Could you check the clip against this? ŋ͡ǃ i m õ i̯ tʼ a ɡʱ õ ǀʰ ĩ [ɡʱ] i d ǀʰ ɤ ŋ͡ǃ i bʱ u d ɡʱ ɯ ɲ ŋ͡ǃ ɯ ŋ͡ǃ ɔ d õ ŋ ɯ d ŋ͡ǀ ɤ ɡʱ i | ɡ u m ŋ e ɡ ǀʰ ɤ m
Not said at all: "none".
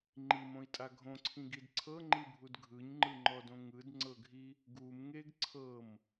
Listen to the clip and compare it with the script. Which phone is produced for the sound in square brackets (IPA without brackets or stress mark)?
ɡ